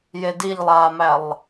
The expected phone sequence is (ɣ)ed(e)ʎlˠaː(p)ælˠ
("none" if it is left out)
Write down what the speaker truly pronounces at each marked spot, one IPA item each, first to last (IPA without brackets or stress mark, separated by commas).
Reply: j, i, m